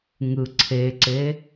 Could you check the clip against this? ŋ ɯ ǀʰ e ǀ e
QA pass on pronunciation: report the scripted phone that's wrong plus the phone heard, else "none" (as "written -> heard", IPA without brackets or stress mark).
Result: none